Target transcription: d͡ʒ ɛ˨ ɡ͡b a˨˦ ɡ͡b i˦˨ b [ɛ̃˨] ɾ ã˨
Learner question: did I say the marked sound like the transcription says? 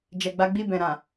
yes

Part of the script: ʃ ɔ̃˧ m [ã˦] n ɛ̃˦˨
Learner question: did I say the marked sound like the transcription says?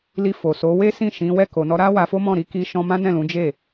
yes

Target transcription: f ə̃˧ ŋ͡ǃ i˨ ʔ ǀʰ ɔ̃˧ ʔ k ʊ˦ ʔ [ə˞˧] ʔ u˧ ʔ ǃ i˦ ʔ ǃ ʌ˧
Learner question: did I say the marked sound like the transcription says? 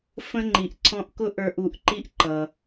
yes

